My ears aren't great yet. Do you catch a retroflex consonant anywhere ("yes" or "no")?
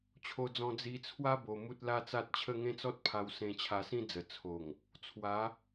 no